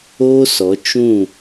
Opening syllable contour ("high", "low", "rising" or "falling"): high